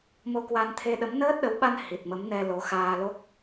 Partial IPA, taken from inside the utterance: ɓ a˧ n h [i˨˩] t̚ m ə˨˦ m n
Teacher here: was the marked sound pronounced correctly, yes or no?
yes